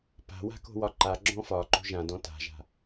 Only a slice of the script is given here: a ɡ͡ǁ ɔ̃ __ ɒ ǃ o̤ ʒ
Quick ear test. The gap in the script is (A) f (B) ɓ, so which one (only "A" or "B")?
A